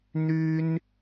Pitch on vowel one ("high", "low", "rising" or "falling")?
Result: high